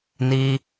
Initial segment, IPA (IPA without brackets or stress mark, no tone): n